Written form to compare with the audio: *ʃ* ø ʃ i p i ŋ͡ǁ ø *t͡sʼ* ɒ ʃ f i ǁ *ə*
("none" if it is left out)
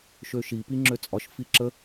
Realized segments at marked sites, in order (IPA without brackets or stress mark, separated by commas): ʃ, t͡sʼ, ə